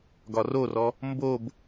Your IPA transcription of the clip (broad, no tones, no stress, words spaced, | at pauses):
ɡɒrorɔ | mbob